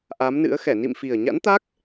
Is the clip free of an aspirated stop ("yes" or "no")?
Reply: yes